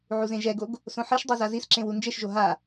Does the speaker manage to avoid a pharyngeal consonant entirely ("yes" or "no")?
no